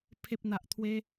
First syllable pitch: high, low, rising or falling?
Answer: low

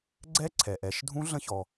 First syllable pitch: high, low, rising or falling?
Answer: rising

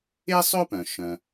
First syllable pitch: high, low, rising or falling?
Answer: high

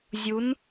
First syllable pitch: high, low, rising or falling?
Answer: rising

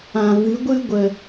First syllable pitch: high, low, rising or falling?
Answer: low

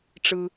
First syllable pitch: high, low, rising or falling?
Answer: low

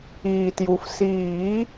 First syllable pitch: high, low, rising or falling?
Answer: low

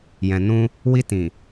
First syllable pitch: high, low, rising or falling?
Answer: low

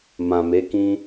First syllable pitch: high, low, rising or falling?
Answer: low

